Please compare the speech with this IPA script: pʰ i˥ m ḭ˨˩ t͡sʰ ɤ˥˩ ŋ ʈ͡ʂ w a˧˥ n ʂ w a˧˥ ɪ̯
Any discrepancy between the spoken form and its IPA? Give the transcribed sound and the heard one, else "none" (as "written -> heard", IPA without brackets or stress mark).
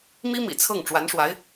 pʰ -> m